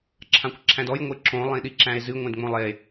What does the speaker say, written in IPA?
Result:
ǁʰ ã kʷ ǁʰ æ̃ d ɔ j ŋʷ e ǁ õ lˠ ĩ ɗ i ǁ æ̃ e̯ z ɨ ŋʷ ẽ d ŋ͡m õ lˠ e

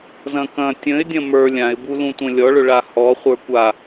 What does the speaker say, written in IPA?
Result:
z ɐ̃ k ɐ̃ tʲ ə̃ ɪ̯ dʲ ɐ̃ m ə˞ lʲ ã ɪ̯ b u l ũ tʷ ɐ̃ lʲ ɔ ɭ ɵ ɭ a h ɔ χʷ ə˞ kʷ a

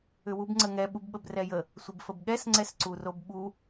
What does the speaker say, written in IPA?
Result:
ʏ w u b ŋ͡ǀ ə ŋ ɛ ɓ u b ɓ ə b r ɛ j ə | sʷ ə b f ə b ɠ ɛ s ŋ͡ǀ ɛ s ǀ u r o b ɓ u

